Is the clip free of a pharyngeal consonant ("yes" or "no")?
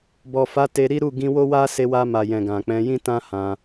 yes